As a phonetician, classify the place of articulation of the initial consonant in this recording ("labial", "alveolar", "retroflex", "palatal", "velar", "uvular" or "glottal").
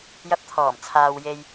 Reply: palatal